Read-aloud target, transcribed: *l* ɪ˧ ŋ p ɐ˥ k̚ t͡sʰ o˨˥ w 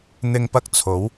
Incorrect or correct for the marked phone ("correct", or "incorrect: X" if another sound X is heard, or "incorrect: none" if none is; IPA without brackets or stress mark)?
incorrect: n̪